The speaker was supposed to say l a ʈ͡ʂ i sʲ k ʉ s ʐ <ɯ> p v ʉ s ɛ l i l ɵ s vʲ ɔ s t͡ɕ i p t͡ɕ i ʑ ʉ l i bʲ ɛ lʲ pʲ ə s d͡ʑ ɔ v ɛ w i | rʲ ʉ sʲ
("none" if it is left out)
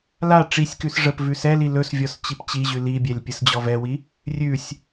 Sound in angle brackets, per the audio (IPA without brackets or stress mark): ə